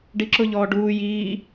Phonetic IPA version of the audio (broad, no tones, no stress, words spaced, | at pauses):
ɖiǁʊ ʎɔːɖuː jiː